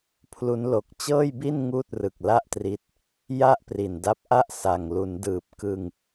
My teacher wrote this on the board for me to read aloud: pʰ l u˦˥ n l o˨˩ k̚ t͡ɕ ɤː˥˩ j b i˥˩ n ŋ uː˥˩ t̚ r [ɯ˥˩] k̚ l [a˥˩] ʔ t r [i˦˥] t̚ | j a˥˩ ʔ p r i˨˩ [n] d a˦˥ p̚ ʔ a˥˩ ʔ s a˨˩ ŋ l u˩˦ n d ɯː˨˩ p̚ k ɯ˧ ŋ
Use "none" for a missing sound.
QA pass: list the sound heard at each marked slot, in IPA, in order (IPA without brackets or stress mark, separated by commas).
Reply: ɯ˨˩, a˥˩, i˦˥, n